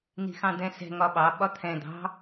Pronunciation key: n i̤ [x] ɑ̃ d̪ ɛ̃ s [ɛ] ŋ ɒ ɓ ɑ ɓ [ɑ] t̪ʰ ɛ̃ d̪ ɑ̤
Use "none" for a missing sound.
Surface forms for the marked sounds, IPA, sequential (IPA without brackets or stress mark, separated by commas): x, ɛ̤, ɒ